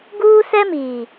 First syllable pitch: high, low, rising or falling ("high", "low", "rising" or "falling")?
high